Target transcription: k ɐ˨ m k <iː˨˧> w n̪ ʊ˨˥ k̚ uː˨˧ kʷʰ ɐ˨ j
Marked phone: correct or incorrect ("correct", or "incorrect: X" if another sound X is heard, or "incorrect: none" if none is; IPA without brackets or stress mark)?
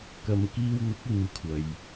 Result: incorrect: iː˧